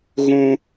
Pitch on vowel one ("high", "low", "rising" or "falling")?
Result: high